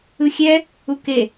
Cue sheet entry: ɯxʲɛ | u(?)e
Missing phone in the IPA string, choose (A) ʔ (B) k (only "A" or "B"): B